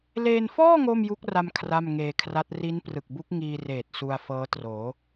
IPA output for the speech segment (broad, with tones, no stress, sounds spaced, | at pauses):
l eː˧ n f ɔː˥˩ ŋ oː˥˩ m j u˦˥ k̚ r a˧ m kʰ r a˥˩ m ŋ eː˧ kʰ r a˦˥ t̚ r i˦˥ n p r ɯ˨˩ k̚ b u˦˥ k̚ ŋ iː˧ r eː˨˩ t̚ s u˧ a̯ f ɤː˦˥ t r oː˩˦